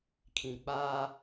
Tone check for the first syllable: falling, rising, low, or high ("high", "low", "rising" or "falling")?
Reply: low